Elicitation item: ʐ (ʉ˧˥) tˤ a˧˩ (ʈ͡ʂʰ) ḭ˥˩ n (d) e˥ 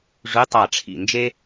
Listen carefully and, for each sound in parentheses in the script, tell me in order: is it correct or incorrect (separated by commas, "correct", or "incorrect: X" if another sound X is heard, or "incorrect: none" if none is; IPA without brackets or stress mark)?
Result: correct, correct, incorrect: d͡ʒ